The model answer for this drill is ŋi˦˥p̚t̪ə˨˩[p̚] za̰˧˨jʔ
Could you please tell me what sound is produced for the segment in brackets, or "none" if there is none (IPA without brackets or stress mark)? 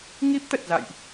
t̚